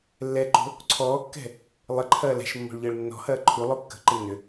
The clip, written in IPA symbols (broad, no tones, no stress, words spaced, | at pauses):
lːɛǃo̤ | ǀʰɔːkːɛ̤ | lˠɪǃʰɐː lɛ̤ʃmːo̤ɭʎəːɭ nːɔ̤hɐː ǃʰulˠo kːə̤ǃɪ nːʏ